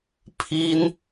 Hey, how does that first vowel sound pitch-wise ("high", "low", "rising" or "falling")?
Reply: high